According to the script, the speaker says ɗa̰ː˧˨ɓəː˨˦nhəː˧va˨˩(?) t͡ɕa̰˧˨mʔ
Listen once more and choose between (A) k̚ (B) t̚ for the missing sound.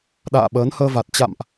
B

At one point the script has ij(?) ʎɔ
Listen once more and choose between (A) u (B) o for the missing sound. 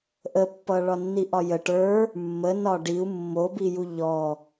A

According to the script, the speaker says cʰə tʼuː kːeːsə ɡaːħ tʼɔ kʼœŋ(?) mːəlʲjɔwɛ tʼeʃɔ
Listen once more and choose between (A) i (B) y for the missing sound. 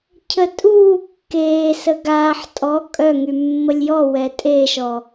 B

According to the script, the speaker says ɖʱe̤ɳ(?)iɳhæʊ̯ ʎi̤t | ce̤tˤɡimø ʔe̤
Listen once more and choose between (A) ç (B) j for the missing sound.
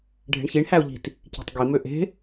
A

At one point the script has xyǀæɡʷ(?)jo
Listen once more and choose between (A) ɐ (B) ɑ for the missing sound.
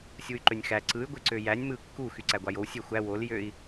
B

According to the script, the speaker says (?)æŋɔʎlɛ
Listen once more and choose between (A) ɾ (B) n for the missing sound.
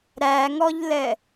A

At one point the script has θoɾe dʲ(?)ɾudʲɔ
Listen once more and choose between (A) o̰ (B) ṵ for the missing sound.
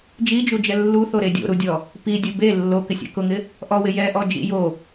A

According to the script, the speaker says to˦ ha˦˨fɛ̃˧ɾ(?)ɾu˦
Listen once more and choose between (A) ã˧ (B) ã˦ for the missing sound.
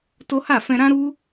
B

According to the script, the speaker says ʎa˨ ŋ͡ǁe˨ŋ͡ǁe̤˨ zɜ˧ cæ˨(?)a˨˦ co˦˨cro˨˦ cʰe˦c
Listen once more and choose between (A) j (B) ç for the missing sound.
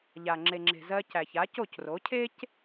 B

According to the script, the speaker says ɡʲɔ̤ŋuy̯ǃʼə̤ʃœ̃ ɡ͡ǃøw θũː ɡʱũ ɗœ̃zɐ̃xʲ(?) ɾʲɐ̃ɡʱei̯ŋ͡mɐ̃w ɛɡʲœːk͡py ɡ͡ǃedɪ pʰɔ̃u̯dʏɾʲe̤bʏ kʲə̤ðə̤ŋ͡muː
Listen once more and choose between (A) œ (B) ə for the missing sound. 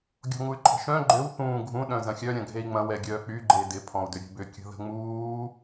A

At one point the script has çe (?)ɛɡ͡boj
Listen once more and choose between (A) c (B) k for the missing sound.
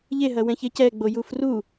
A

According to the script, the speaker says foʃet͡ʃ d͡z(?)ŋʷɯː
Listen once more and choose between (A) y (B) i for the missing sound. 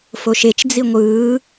B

